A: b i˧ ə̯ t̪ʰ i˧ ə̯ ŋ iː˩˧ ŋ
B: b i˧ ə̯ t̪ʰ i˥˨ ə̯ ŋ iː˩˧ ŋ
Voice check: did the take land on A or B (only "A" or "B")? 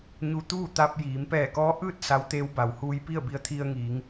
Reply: A